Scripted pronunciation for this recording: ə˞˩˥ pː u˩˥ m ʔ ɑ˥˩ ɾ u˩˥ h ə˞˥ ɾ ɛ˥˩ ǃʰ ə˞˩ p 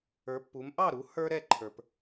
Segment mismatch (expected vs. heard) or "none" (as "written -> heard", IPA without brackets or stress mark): none